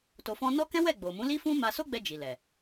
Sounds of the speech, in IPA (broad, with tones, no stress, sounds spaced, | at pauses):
t o˧ f ɔ̃˦ n ɔ˦ k ɛ̃˦ w ɛ˦˨ ɡ͡b o˨ m ũ˨˦ l i˦ f ũ˦ m a˧ s o˦ ɡ͡b ɛ˧ d͡ʒ i˨ l ɛ˨